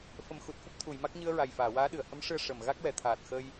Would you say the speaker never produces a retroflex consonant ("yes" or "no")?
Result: no